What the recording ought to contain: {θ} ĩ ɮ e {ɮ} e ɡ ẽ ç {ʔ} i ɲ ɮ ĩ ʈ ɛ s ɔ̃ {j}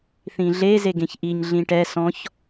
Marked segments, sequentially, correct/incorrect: correct, incorrect, correct, incorrect

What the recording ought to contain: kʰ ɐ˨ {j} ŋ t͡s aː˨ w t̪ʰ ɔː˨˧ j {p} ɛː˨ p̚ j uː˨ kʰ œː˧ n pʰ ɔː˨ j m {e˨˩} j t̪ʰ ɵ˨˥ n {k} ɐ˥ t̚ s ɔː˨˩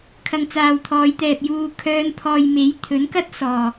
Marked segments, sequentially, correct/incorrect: incorrect, incorrect, incorrect, correct

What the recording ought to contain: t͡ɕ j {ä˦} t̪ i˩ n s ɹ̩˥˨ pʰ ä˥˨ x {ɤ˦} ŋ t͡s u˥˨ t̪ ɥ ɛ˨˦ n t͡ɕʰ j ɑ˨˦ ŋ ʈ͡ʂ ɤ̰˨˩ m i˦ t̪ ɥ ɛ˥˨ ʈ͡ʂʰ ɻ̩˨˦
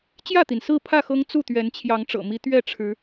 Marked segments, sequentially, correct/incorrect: incorrect, correct

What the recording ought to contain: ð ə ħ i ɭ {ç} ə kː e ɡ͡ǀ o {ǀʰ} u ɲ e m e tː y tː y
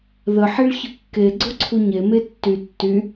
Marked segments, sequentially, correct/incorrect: correct, correct

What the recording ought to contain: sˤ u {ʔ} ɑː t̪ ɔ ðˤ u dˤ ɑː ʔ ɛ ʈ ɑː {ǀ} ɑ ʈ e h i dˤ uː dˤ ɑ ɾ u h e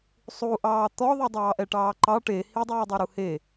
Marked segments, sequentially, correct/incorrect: correct, incorrect

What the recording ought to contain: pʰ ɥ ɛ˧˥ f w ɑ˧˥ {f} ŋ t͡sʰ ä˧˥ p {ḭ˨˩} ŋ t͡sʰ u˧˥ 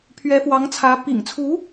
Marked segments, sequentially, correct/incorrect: incorrect, correct

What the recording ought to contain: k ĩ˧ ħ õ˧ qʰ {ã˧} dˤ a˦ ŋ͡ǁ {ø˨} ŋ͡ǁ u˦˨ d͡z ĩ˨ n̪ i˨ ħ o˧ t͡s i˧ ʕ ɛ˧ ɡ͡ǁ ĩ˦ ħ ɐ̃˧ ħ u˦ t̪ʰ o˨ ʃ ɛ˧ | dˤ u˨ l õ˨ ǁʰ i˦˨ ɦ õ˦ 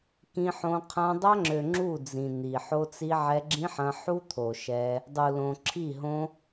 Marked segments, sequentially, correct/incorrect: correct, correct

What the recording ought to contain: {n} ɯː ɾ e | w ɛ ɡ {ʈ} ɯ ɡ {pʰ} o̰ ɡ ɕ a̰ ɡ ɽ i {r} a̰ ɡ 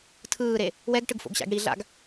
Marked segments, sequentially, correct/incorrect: incorrect, correct, incorrect, incorrect

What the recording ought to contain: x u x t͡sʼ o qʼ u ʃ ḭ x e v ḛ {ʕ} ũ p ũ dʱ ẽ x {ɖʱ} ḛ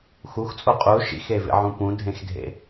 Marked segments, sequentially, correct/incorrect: correct, incorrect

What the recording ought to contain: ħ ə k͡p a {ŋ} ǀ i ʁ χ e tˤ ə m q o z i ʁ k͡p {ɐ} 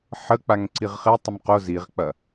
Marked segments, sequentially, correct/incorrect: correct, correct

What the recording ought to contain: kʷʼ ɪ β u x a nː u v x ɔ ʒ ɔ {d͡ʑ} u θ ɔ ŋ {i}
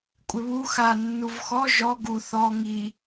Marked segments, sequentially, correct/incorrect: incorrect, correct

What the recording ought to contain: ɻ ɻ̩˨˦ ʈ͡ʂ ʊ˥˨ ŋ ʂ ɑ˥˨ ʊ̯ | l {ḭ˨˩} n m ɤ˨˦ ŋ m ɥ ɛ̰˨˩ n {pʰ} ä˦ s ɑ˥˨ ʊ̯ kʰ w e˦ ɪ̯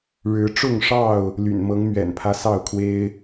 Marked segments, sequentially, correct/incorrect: incorrect, correct

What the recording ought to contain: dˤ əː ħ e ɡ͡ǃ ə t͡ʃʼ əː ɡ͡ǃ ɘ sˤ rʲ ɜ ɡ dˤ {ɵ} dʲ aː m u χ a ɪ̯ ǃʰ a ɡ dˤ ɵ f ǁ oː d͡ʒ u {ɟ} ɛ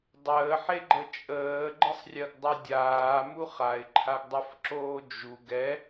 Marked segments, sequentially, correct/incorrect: incorrect, incorrect

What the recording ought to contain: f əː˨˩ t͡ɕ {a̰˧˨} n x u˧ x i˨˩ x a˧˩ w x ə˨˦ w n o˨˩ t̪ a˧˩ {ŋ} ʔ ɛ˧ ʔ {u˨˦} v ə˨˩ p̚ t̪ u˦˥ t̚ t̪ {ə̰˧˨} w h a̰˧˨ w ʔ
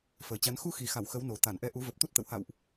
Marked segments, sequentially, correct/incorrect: incorrect, incorrect, correct, correct

